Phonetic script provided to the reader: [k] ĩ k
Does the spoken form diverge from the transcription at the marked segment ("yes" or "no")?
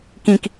no